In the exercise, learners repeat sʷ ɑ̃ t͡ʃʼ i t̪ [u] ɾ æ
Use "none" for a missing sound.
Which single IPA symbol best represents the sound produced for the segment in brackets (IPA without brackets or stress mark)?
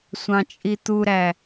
u